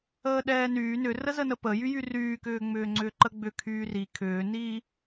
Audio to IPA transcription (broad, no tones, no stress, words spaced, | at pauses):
əːɗɛːnyː nʏrə zənəpəjy jyryːkʏː ŋ͡mʏːŋ͡ǀʏːǃəɡ͡bʏ kʰyːri kʰʏːniː